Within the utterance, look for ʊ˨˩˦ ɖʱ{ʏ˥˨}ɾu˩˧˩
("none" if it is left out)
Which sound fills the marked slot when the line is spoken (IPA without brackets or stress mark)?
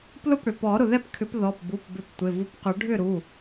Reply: ʏ˥˨